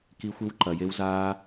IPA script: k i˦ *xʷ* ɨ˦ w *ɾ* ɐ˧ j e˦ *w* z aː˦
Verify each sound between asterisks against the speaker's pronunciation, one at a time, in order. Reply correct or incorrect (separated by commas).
correct, incorrect, correct